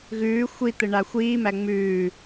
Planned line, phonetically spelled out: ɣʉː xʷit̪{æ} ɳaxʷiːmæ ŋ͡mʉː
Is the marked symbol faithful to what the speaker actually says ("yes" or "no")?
no